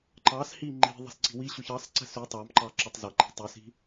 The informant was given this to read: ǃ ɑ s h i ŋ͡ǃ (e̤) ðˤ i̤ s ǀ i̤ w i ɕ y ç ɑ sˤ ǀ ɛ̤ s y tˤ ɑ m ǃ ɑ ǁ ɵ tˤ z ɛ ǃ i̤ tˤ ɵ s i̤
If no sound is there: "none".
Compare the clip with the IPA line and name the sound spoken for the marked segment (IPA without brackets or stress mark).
i̤